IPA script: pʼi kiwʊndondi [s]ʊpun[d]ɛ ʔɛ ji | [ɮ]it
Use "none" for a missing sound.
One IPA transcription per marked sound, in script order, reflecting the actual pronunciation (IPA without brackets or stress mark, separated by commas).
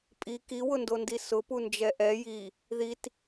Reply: s, d͡ʒ, ð